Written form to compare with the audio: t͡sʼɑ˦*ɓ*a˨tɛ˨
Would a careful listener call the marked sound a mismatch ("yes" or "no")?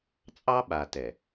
no